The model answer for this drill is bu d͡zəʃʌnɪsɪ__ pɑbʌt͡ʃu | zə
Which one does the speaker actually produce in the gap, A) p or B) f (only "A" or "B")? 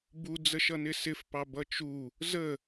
B